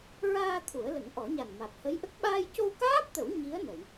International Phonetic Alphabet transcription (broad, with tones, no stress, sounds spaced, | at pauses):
ɹ aː˧ t̪ʰ u˨˩˦ ə̯ l ə˨˩˦ ŋ ʔ ɔ˨˩˦ ɲ a˨˩ n m a˨˩ t̚ h ə˧˥ j ʔ ə˦˥ k̚ ɓ aː˧ j c o˧ w k aː˦˥ p̚ t̪ ə˨˩˦ w ɲ i˧˥ ə̯ n ə˨˩˨ j